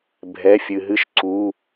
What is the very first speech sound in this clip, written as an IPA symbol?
bʱ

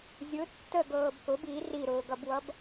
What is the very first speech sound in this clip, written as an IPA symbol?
zʲ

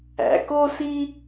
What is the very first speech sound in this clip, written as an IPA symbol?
æ̰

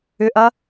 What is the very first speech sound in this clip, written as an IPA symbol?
ʏ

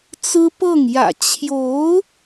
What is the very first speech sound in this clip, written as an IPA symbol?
t͡s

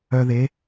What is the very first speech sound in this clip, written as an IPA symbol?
œ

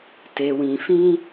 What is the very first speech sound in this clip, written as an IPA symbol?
t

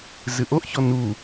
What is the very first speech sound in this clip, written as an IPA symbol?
z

